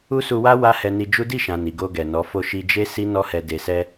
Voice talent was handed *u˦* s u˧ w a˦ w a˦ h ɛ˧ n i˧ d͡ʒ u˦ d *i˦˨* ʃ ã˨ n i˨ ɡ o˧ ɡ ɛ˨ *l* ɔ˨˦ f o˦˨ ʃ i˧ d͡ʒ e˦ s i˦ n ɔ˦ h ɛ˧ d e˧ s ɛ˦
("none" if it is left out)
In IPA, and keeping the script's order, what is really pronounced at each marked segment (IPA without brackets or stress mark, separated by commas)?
u˦, i˦˨, n